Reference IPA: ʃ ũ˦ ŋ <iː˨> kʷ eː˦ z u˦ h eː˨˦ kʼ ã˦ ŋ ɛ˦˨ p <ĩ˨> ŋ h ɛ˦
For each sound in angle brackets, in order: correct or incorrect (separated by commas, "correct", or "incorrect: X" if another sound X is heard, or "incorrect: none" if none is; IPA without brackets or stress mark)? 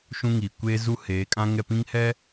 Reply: correct, incorrect: ĩ˦